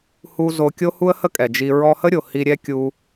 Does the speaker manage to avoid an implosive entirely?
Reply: yes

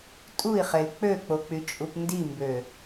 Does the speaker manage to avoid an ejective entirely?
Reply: no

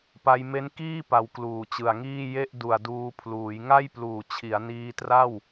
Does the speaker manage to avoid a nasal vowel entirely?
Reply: yes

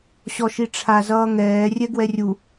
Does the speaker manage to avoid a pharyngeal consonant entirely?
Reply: yes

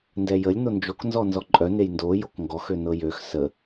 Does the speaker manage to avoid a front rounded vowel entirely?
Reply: no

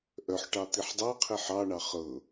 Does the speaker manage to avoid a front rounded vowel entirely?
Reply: no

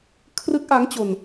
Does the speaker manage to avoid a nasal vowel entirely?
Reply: yes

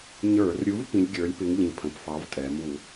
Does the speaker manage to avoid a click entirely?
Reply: yes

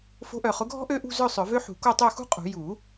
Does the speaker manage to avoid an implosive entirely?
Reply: yes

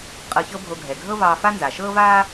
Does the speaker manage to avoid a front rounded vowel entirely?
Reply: yes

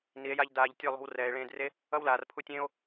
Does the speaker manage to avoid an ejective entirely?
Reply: yes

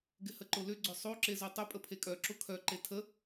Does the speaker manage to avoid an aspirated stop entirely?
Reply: no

